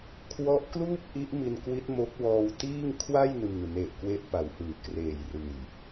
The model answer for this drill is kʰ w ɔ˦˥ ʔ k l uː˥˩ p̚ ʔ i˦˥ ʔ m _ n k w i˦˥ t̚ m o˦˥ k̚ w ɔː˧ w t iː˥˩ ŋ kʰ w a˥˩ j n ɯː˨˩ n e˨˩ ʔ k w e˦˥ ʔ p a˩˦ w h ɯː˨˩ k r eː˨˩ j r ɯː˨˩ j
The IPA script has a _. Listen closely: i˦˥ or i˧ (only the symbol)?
i˧